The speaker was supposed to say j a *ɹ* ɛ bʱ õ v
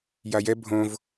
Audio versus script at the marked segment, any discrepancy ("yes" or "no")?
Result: yes